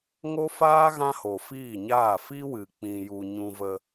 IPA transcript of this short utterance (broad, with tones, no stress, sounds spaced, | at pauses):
ŋ o˦ f aː˦ ɣ ã˦ h o˨ f iː˦˨ ɲ aː˦˨ f i˦ w ɨ˨ k͡p ĩ˧ j u˧ ɲ ũ˧ v ə˧